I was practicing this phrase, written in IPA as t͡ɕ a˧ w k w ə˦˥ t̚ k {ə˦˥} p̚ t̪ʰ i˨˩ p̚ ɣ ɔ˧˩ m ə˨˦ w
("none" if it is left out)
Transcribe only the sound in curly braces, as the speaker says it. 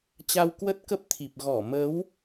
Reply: ə˦˥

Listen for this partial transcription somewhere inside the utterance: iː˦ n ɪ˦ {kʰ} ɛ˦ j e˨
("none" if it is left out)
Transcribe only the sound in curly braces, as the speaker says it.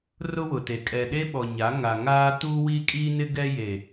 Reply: ɡ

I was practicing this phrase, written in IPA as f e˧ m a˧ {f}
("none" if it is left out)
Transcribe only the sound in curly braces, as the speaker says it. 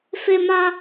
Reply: none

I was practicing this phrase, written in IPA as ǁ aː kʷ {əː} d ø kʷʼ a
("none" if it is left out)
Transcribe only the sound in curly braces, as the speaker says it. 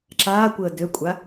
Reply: əː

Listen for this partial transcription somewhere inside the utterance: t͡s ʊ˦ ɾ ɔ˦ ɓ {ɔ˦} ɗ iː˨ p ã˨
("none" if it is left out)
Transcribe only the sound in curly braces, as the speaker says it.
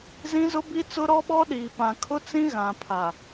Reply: ɔ˦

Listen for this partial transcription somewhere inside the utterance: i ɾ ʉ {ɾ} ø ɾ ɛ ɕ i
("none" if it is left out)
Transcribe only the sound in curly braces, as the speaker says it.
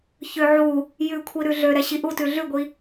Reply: ɮ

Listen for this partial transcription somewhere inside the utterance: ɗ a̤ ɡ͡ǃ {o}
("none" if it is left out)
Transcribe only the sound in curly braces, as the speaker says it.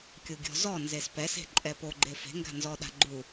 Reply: u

